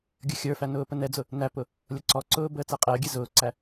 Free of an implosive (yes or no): yes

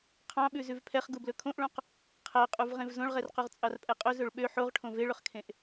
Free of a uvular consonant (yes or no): no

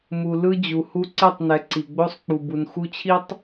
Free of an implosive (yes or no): yes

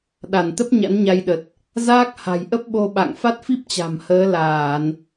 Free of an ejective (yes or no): yes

